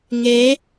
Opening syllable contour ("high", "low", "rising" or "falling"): rising